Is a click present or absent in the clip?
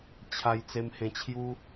absent